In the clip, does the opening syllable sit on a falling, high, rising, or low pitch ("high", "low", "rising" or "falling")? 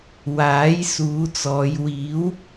rising